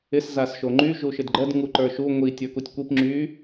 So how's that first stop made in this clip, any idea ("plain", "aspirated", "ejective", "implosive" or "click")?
click